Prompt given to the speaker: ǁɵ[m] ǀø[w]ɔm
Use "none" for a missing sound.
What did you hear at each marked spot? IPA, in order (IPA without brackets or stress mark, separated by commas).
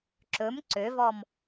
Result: m, v